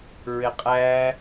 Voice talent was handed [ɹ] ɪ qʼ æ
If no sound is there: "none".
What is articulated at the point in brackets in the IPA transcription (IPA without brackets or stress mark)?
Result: ɹ